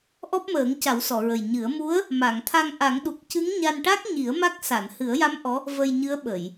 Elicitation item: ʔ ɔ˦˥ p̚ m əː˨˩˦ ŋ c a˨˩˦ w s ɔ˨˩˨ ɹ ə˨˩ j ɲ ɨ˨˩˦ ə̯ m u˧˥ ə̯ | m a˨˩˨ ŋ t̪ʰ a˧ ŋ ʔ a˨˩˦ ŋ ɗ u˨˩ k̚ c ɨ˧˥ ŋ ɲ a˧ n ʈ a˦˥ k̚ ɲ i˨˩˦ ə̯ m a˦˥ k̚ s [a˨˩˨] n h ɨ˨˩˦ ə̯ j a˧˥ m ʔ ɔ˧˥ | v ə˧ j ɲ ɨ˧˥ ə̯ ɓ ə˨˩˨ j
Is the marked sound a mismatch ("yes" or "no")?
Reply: no